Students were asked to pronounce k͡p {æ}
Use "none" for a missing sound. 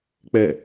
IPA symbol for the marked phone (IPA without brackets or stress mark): ɛ